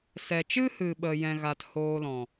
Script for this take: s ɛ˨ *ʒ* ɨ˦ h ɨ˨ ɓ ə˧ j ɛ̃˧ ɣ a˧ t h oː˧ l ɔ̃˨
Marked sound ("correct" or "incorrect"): incorrect